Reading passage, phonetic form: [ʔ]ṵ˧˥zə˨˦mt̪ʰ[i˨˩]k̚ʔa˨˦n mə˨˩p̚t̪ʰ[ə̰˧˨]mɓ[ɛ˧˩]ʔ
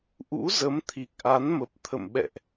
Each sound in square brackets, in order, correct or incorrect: correct, correct, correct, incorrect

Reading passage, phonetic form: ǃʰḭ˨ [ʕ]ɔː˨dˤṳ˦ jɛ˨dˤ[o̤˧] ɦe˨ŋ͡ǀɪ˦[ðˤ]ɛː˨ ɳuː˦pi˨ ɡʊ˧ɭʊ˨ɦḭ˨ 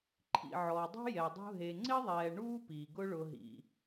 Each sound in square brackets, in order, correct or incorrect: correct, incorrect, correct

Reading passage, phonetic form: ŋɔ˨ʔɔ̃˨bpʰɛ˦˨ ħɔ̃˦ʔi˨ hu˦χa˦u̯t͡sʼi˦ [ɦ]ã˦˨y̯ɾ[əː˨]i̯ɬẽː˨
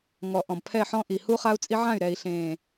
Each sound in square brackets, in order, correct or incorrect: incorrect, incorrect

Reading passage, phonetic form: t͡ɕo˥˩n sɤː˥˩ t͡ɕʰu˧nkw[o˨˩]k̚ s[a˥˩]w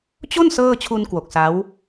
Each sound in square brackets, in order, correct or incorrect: correct, incorrect

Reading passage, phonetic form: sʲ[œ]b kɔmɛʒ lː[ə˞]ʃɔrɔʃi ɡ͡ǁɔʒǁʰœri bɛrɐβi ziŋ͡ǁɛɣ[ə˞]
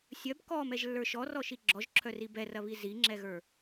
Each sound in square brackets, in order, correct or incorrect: correct, correct, correct

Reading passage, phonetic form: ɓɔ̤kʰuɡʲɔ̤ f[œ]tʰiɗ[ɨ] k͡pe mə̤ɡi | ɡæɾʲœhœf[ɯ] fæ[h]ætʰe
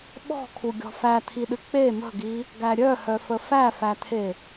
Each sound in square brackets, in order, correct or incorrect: incorrect, correct, incorrect, incorrect

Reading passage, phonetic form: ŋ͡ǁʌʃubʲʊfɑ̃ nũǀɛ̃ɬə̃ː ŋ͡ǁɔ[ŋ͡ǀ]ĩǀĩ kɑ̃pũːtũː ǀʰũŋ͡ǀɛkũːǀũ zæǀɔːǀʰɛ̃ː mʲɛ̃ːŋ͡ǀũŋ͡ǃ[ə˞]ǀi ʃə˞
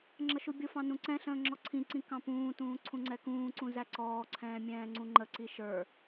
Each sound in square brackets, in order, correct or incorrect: incorrect, incorrect

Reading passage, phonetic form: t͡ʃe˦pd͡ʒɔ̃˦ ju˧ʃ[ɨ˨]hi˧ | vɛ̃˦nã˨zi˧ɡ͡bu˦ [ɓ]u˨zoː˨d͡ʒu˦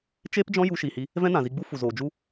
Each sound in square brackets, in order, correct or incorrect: incorrect, incorrect

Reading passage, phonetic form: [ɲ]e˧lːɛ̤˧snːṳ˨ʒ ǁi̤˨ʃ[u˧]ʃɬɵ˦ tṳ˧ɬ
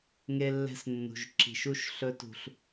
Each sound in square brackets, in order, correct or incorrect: incorrect, incorrect

